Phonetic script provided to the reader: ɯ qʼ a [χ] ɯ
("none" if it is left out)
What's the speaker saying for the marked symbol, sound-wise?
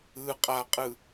qʼ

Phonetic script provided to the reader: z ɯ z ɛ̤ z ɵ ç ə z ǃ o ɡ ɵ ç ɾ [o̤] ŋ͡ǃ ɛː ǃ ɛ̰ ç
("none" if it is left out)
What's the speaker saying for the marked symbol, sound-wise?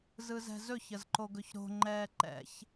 o̤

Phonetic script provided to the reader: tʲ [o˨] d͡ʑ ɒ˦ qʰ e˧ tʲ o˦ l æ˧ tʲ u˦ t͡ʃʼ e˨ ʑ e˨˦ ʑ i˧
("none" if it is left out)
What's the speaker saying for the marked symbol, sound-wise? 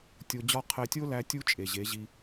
o˧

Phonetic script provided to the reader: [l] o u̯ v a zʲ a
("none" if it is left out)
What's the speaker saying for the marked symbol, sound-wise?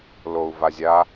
l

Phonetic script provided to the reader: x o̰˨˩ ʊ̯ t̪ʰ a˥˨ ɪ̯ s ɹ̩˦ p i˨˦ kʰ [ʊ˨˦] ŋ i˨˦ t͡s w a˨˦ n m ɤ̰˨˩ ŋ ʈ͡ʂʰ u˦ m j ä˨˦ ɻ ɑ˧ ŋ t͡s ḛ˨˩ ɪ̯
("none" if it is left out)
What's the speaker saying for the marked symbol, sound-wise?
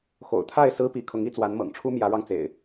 ʊ˨˦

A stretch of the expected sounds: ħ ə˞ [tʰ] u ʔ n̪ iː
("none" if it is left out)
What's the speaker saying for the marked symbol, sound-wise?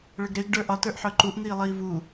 ǃ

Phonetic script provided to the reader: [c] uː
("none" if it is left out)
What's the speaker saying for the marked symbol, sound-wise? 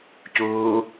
c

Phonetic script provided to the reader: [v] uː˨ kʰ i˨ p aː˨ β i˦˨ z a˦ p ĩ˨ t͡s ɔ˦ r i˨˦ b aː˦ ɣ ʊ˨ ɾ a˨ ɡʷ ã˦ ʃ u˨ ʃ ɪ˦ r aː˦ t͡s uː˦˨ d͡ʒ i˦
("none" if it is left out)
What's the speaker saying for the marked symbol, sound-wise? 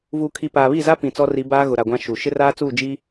v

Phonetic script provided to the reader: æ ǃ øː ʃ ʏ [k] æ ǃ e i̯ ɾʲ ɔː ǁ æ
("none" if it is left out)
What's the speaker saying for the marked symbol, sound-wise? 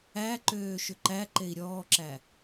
ǃ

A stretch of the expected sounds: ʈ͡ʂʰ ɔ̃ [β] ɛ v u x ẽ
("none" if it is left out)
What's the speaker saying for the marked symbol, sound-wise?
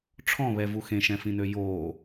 β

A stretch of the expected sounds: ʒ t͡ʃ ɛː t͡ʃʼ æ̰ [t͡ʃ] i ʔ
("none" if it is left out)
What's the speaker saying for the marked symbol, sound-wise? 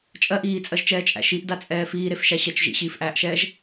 ʃ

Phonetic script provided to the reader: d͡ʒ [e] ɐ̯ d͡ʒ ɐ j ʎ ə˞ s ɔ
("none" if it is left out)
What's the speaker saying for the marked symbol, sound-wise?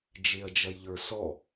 e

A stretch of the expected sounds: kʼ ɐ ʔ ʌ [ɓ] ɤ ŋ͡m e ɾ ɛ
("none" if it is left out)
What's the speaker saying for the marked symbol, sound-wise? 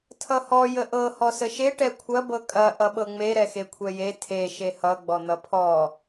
ɓ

